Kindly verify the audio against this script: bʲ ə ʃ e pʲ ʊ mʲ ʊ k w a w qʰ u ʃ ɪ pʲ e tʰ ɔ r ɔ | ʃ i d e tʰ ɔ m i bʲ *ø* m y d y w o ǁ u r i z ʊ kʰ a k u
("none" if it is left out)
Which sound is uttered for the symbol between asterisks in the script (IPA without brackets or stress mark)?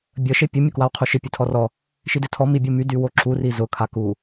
u